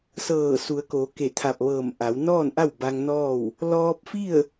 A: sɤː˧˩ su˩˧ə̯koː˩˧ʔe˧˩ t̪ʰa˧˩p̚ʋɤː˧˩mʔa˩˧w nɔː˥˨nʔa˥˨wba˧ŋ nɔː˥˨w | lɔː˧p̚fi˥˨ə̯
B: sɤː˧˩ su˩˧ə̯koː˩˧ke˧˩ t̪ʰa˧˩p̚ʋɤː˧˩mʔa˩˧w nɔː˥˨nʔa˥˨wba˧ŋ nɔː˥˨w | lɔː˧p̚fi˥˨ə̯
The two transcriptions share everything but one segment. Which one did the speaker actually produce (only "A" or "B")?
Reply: B